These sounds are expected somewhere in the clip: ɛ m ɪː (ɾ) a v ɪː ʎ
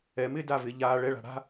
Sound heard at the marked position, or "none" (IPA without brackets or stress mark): d